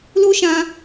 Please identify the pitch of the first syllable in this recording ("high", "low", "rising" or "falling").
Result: high